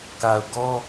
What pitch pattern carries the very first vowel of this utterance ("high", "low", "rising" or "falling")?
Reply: low